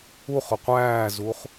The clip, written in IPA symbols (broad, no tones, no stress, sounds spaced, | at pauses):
u χ ʊ qʷ æː z u χ